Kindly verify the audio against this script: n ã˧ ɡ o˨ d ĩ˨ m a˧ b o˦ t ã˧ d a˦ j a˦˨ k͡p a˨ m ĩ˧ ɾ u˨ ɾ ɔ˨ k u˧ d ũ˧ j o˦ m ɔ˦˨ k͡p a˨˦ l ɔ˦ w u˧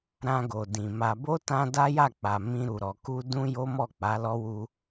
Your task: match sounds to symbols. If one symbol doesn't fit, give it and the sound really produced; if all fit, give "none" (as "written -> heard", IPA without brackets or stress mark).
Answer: n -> ɾ